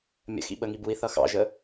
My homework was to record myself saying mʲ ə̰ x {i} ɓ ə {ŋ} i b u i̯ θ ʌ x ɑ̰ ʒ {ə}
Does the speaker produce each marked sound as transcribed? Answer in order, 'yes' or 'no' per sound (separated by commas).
no, yes, yes